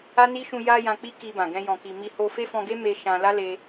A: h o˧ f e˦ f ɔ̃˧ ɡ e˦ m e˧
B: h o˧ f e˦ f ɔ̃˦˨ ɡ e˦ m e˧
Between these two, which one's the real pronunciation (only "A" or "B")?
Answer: A